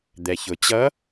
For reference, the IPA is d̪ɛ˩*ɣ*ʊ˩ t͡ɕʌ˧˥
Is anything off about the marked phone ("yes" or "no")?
yes